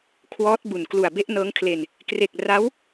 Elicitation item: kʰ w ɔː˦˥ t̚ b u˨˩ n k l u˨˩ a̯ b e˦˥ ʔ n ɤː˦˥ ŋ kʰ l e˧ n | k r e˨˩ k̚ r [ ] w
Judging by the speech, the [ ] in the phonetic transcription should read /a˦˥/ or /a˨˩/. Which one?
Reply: a˦˥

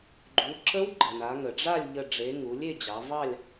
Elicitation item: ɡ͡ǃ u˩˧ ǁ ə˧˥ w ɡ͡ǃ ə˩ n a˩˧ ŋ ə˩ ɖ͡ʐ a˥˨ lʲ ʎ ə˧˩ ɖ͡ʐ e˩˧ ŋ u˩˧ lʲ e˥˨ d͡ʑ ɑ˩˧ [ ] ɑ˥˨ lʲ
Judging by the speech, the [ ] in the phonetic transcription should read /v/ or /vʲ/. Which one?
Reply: v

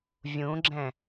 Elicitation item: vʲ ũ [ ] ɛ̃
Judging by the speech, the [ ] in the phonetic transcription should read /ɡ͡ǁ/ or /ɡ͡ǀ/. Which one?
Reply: ɡ͡ǁ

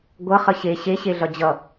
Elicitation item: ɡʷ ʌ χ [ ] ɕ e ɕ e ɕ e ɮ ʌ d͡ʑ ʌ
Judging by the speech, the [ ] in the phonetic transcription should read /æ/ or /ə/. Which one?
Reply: ə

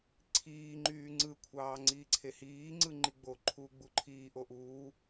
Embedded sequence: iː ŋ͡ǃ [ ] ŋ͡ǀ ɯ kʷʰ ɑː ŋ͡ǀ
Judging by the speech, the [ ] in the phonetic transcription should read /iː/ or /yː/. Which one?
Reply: yː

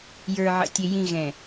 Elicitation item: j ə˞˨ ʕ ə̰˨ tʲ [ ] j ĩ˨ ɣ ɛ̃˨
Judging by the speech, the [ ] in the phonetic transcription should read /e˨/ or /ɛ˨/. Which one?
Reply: e˨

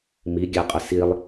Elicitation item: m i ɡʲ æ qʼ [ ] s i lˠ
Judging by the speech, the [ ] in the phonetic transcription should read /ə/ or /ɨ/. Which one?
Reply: ə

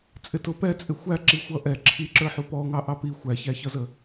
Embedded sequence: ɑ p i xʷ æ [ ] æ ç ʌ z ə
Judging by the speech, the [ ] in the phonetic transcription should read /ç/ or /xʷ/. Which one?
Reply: ç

